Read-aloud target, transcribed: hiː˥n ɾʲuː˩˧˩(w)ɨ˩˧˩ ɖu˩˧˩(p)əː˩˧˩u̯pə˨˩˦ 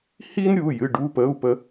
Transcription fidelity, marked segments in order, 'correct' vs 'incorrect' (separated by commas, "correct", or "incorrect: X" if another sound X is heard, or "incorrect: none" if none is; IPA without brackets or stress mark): incorrect: j, correct